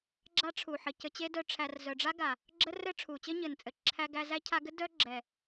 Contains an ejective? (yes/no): yes